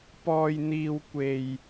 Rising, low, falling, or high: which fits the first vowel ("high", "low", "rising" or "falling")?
low